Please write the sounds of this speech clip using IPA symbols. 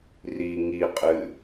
r i ŋ i qʼ ɨ

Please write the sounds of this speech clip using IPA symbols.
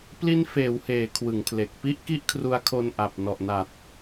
p l i˦˥ n f eː˩˦ w h eː˩˦ kʰ w ɯ˩˦ ŋ pʰ l e˨˩ k̚ p i˦˥ ʔ k i˦˥ ʔ kʰ r u˧ a̯ kʰ o˧ n ʔ a˨˩ p̚ n ɔ˨˩ ʔ n a˨˩ t̚

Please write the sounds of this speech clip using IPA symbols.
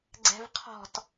ɡ͡ǀ ɛ̤ v qʰ ɔ̤ t

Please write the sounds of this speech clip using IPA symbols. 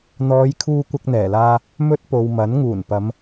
n̪ ɔː˨˧ j kʰ uː˧ kʷ ɐ˧ k̚ n̪ ɛː˨˩ l aː˧ | m ɵ˧ t̚ p o˨ w m ɐ˨˥ n ŋ uː˨˩ n p ɐ˨˧ m

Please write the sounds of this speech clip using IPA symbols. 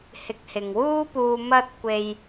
h ɪ˨˥ k̚ h ɪ˨ ŋ w uː˥ p uː˧ m ɐ˥ t̚ kʷ e˧ j

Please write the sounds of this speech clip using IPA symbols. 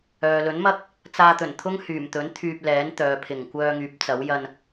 œː˨ l ɵ˨˥ n m ɐ˥ k̚ | t͡s aː˧ t̪ ɵ˨˩ n t̪ʰ ʊ˥ ŋ h yː˨˩ m t̪ ɵ˨˥ n t̪ʰ yː˧ p̚ l ɛː˨˥ n t̪ œː˨ pʰ ɪ˨˩ ŋ kʷ œː˧ ŋ yː˨˥ p̚ t͡s ɐ˨˥ w j ɐ˧ n

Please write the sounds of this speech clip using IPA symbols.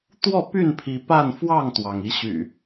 t̪ w ɔ˥˨ p y˥˨ n pʰ i˨˦ p a˥˨ n f w ɑ˥˨ ŋ t̪ w ɑ˩ ŋ i˨˦ ɕ y̰˨˩

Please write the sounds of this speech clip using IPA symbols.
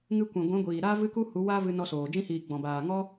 ŋ ɨ˧ kʷ ɛ̃˨ ɡʷ ɛ̃˨˦ ɡʷ iː˨ ɾ aː˦ v ɨ˦ k u˦ h u˨˦ w a˦ v ɨ˧ n ɔ˧ s oː˨ d͡ʒ ĩ˧ h iː˨ ɡ͡b ɔ̃˨ b aː˨ ŋ ɔ˦

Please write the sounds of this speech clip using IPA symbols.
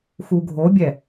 x u ɡʱ o bʲ ɛ

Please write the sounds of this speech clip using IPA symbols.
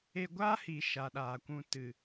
e˧ ɡʷ aː˦ h i˨ ʃ a˨ ɗ aː˨ kʷ ũ˧ t ɨ˨

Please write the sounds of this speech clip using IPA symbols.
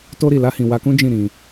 t o˧ ɾ i˨ l a˧ h ĩ˨ w a˧ k ũ˦ d͡ʒ ĩ˦˨ ɾ ĩ˧

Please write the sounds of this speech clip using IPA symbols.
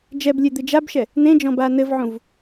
d͡ʒ ɛ b lʲ e d̪ ɨ d͡ʒ a b ʃ ɛ | n̪ ẽ d͡ʒ ɔ̃ b a n ɘ v ʕ ũ v

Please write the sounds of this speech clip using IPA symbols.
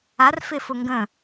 a r f ɪː f ʊ ŋ ɡ ə̃

